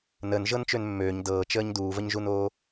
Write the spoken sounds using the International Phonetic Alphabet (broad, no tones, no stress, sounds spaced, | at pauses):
n əː n ʒ ɤ n t͡ʃ ø n mː øː ɲ d ɤː t͡ʃ əː ɲ d uː v ə ɲ ʒ u n oː